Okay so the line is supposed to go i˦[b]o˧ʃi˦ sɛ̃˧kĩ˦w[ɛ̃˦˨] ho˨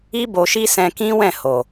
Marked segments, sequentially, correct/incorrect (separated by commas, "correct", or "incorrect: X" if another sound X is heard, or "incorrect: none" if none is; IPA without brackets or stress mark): correct, correct